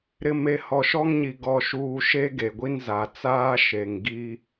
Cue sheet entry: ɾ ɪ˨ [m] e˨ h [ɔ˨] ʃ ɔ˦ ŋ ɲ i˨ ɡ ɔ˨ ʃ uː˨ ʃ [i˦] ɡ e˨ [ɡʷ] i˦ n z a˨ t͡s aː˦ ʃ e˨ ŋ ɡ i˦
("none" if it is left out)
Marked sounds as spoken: m, ɔ˨, e˦, ɡʷ

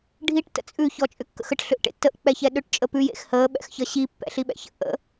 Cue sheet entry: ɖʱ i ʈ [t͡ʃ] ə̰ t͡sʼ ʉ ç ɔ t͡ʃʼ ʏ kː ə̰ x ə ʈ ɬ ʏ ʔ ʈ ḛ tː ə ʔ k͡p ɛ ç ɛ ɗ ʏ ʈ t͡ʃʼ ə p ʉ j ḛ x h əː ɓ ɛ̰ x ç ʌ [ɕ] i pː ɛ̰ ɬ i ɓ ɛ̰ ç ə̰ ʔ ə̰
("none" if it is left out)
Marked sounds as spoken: t, ɕ

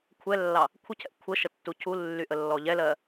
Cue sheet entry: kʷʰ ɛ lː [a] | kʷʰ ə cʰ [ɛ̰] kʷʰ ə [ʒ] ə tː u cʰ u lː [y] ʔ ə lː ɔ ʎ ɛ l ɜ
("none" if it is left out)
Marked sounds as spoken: ɑ, ɛ̰, ʃ, y

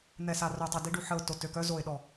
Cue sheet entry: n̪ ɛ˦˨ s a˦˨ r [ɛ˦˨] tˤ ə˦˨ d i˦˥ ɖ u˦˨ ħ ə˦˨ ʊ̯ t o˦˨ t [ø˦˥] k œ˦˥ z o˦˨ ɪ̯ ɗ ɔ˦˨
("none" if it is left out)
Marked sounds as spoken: œ˦˨, ø˦˨

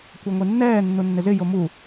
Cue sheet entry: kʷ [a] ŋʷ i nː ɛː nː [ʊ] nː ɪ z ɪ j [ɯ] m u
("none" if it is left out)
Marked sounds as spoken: a, u, ʊ

